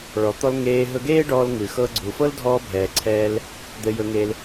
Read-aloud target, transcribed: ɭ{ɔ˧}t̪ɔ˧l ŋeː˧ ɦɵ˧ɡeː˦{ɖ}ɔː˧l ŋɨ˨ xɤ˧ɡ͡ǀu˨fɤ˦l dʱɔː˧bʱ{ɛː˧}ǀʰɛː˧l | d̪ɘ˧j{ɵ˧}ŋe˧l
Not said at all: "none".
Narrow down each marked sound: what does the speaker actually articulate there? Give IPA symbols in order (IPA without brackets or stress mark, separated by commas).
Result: ɔ˨, ɖ, ɛː˨, ɵ˧